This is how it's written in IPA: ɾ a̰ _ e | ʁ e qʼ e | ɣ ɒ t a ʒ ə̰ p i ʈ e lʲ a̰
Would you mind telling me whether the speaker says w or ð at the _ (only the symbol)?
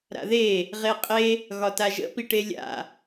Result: ð